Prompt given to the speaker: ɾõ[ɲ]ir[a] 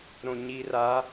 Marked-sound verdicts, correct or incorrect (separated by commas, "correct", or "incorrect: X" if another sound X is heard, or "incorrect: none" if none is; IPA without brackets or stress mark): correct, correct